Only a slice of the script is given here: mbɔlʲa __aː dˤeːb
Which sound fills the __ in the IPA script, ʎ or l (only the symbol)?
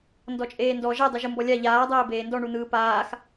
ʎ